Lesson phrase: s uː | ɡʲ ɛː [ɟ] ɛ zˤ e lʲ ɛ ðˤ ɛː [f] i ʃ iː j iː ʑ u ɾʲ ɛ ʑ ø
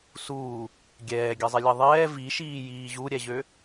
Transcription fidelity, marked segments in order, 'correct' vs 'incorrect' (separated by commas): incorrect, incorrect